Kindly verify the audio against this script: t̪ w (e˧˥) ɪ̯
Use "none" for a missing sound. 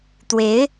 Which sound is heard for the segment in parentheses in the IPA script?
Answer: e˧˥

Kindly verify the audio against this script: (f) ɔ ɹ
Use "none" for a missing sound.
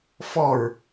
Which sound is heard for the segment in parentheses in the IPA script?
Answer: f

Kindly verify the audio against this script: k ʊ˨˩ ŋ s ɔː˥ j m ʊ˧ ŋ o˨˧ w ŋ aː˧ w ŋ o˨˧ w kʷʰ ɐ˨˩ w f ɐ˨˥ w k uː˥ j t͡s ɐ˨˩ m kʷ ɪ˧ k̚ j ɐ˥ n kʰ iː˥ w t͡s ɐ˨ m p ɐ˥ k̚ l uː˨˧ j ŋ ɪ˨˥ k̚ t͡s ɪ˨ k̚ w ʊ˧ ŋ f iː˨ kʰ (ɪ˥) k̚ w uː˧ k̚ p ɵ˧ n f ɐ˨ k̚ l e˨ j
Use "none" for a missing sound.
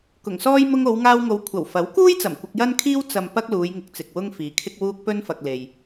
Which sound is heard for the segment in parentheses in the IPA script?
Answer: ɪ˥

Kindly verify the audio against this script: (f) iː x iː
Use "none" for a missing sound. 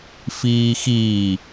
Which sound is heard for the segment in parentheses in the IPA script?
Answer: f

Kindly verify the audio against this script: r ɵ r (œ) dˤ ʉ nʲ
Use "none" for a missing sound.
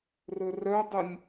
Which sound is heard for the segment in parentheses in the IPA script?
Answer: œ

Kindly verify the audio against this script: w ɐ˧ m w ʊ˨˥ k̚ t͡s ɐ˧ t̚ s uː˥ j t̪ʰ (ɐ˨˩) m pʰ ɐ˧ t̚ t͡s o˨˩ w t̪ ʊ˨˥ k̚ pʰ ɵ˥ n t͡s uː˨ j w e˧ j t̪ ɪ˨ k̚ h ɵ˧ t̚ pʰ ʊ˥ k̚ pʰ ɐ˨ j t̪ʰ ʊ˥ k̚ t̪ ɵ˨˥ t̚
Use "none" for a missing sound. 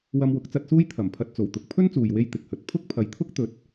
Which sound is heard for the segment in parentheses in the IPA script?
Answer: ɐ˨˩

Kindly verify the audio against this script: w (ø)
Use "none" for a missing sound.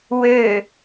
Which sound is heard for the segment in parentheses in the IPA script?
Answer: ø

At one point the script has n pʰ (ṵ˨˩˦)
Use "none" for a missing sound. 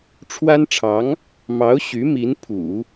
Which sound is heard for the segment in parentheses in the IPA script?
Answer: ṵ˨˩˦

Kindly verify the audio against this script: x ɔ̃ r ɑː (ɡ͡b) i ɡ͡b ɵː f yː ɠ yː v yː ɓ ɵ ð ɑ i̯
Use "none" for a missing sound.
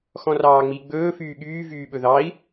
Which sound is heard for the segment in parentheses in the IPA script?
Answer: ŋ͡m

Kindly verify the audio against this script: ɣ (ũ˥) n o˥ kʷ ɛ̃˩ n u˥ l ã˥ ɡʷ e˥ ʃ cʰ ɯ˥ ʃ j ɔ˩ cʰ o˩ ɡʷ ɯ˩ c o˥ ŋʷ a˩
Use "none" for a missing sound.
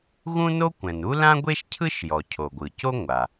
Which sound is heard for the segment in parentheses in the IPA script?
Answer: ũ˥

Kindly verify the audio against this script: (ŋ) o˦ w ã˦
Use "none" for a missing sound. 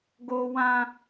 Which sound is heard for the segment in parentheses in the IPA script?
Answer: ɡ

